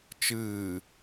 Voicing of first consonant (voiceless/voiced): voiceless